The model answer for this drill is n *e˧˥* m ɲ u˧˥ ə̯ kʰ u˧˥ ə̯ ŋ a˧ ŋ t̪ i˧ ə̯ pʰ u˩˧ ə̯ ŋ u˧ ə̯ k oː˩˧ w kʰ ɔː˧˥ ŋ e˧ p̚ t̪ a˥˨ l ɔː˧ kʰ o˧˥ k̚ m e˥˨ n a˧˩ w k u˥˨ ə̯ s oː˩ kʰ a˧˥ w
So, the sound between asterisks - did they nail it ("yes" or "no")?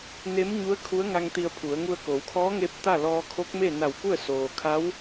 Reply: yes